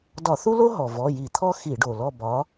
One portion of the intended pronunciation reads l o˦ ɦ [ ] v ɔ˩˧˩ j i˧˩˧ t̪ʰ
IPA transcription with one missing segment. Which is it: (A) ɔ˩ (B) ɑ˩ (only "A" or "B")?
A